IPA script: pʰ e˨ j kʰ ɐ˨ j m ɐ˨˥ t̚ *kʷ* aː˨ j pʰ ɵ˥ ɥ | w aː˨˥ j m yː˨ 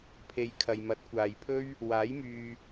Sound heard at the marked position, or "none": kʷ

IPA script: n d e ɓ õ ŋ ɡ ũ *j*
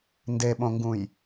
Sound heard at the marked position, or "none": j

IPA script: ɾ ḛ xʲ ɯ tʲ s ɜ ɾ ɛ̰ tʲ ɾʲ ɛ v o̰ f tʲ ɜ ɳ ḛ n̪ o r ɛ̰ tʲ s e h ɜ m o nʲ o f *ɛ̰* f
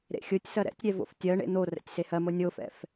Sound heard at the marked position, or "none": ɛ̰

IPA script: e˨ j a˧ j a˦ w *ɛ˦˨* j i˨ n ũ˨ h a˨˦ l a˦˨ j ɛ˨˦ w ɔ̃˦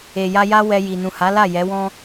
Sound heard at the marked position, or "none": ɛ˧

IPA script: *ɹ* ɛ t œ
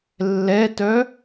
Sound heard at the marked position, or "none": lː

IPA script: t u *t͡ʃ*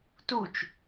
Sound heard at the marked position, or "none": t͡ʃ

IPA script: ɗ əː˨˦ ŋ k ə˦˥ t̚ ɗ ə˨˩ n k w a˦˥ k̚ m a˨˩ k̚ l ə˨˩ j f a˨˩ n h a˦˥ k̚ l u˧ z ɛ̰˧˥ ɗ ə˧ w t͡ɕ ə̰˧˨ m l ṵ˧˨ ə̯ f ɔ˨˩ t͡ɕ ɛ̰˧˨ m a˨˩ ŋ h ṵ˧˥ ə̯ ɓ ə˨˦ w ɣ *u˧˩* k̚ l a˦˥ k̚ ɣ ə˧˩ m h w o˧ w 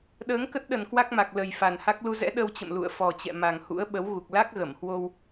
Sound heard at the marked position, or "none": u˨˩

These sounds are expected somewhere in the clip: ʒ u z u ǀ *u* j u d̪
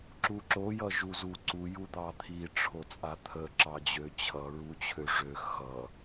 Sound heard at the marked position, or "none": u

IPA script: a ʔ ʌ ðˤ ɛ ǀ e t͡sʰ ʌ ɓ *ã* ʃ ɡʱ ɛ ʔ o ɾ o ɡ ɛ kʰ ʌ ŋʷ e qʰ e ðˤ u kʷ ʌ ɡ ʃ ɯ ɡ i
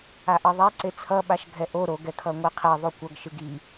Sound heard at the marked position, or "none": a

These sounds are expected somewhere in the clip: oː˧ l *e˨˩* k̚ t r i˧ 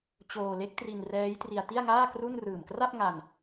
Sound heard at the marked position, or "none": e˦˥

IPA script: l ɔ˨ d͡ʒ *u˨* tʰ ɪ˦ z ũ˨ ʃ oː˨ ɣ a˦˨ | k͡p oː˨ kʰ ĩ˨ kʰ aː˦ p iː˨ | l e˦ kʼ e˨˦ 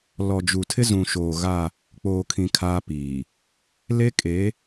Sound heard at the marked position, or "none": u˨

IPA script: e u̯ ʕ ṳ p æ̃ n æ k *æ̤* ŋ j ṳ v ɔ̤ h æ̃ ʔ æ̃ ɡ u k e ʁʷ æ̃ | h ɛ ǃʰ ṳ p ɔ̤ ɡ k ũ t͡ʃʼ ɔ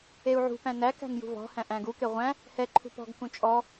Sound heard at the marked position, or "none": æ̤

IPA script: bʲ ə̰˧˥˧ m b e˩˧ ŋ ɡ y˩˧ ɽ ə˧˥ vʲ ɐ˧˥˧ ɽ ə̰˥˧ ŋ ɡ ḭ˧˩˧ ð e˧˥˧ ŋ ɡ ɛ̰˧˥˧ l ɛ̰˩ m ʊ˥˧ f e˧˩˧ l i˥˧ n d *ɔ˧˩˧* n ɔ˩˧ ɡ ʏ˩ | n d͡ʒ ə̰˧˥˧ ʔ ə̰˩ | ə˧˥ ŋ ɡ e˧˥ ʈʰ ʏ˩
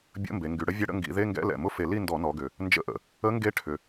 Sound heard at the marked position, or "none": ɔ˧˩˧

